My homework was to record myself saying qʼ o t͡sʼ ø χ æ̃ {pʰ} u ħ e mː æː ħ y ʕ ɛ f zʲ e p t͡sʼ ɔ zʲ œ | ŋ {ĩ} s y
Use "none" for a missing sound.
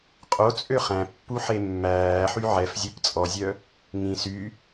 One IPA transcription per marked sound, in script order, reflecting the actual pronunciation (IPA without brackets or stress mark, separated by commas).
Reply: pː, ĩ